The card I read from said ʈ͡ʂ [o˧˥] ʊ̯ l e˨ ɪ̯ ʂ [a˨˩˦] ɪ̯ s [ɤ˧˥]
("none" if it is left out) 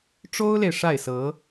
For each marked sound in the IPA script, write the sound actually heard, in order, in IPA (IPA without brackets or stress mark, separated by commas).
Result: o˥, a˥˩, ɤ˧˥